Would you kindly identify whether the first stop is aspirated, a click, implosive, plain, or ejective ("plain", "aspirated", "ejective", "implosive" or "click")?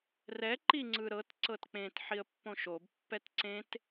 click